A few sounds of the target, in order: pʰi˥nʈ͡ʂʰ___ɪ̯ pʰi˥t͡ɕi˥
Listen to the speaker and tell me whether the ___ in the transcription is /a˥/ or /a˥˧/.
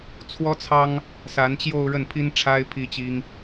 a˥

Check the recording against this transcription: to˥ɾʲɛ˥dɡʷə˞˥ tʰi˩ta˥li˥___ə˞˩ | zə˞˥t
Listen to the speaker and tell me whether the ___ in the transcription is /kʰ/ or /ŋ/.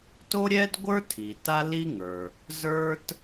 ŋ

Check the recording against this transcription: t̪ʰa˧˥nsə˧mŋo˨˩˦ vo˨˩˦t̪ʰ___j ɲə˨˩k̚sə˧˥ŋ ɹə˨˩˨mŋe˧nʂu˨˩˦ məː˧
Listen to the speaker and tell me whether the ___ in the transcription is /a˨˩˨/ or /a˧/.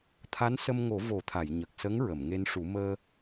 a˨˩˨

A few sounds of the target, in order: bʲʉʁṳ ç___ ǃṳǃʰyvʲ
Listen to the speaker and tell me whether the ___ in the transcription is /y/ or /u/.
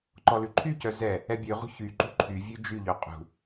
y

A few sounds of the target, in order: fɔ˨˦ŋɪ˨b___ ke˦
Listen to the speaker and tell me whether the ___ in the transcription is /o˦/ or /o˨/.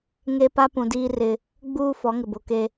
o˨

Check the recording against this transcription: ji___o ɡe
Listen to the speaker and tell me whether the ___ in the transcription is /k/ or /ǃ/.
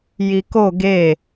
k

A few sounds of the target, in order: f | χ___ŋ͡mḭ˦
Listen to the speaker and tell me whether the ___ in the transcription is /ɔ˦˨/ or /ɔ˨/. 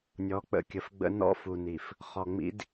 ɔ˨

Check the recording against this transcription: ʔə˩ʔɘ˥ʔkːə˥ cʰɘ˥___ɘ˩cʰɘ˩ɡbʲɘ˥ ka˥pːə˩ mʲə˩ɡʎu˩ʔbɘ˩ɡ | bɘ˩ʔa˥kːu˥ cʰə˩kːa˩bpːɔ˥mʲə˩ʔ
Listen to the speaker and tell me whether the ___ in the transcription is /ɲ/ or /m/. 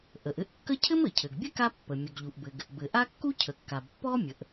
m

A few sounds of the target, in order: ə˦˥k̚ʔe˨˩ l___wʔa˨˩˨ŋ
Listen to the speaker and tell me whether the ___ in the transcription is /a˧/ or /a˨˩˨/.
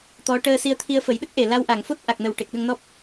a˧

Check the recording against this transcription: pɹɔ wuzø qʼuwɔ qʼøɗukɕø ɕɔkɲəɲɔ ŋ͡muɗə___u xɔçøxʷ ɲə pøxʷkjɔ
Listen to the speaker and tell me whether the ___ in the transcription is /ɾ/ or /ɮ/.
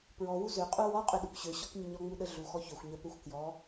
ɮ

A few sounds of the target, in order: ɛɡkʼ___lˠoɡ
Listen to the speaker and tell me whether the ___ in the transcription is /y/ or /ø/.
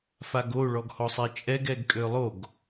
ø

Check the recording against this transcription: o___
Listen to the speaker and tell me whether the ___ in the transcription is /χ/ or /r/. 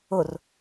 r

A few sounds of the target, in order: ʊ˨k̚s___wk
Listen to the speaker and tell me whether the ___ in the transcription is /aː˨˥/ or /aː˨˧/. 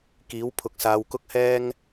aː˨˧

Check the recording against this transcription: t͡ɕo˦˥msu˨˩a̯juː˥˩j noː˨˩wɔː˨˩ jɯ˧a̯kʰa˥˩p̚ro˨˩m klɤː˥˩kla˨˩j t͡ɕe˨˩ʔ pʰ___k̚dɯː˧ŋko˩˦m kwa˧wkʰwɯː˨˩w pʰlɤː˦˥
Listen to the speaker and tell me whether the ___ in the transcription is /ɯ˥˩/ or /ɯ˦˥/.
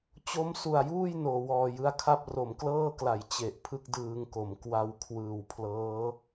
ɯ˦˥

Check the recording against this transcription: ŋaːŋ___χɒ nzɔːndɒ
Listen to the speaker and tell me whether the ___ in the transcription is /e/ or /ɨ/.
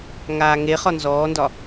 e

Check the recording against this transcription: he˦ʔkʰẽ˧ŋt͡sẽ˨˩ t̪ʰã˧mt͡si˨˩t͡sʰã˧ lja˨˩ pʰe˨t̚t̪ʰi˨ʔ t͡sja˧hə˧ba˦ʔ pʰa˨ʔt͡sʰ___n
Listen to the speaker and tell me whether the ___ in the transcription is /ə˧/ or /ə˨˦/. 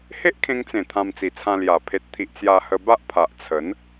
ə˨˦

